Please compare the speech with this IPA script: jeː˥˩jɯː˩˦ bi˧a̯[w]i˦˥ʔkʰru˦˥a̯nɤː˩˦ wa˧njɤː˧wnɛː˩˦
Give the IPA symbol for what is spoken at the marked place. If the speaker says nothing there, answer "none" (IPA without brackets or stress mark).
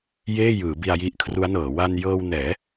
j